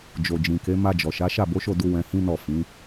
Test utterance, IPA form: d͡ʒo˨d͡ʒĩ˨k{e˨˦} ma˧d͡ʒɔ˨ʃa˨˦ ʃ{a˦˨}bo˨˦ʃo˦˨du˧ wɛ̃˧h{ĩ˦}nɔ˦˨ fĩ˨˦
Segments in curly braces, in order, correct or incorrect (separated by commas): correct, correct, correct